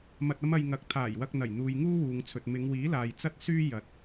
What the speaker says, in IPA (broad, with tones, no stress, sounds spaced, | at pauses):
m ɐ˧ t̚ ɐ˥ m ɐ˧ j ŋ ɐ˨˥ k̚ t̪ʰ aː˨˩ j w ɐ˧ k̚ n̪ ɐ˨˩ j n̪ uː˨ j ŋ uː˥ w uː˨ ŋ t͡sʰ ɵ˨ t̚ m ɪ˨˧ ŋ w iː˨˥ l aː˨ j t͡s ɐ˥ t̚ s yː˥ j ɐ˨˥ t̚